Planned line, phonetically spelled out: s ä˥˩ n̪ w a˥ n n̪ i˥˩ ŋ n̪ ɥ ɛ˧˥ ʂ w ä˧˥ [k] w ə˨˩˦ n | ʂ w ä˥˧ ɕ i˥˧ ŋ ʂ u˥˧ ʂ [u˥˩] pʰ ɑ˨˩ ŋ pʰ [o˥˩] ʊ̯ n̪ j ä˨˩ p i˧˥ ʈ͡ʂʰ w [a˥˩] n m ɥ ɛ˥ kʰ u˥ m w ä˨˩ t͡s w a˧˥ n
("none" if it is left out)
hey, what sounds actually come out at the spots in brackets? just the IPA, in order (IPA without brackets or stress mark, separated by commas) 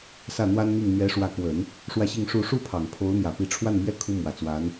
k, u˥˩, o˧˥, a˥˩